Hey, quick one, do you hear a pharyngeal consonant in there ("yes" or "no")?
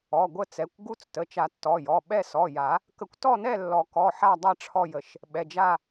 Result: yes